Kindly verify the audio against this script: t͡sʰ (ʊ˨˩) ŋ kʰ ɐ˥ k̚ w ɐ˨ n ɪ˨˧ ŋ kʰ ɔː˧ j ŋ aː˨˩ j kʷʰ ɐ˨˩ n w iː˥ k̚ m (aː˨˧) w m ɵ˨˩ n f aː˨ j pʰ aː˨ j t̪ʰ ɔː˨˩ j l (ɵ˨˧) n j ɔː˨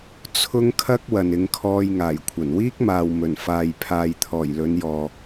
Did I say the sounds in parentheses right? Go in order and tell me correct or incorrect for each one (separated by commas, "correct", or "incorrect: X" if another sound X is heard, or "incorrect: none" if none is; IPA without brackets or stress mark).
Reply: incorrect: ʊ˥, incorrect: aː˨, correct